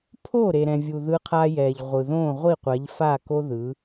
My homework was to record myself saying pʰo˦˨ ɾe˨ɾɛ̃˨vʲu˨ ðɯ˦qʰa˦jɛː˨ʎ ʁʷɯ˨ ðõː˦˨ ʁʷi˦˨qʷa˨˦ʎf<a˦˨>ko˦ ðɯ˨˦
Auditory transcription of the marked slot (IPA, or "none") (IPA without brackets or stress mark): a˦˨